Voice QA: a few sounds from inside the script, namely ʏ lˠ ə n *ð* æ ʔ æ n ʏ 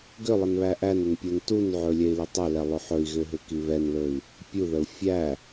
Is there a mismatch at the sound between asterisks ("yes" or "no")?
yes